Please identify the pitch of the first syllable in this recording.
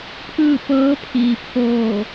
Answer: falling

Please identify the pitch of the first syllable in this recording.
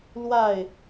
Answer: falling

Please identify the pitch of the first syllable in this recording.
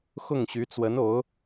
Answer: falling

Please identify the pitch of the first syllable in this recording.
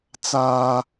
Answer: high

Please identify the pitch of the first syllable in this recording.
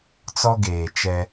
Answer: high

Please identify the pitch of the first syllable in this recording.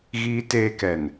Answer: high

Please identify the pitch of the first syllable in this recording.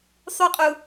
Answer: high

